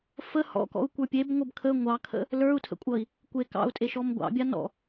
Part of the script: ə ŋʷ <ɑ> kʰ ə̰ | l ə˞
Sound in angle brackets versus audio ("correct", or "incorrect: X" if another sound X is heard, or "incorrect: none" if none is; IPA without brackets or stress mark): correct